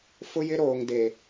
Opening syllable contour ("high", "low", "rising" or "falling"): high